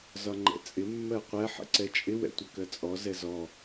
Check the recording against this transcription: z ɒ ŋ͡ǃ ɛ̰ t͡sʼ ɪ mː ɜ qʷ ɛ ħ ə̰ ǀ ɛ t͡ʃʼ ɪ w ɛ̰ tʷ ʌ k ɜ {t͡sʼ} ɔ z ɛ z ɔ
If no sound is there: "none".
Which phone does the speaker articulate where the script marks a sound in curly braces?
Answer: t͡sʼ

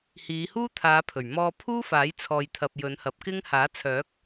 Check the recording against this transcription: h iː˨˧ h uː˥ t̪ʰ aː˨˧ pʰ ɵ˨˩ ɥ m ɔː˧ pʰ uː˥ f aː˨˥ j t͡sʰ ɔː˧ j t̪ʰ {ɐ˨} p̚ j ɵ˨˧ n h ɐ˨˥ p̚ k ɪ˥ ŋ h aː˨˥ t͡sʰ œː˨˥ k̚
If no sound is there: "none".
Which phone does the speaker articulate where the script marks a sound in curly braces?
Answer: ɐ˧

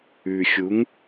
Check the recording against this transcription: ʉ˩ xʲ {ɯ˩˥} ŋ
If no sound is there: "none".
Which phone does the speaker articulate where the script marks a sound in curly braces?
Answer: u˩˥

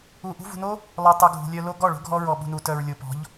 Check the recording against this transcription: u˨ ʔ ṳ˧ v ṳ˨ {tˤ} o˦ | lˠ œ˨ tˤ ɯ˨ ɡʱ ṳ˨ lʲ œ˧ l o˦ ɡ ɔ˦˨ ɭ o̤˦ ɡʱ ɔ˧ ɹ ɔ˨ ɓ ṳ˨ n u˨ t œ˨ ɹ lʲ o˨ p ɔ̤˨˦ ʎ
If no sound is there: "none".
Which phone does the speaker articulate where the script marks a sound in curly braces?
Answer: n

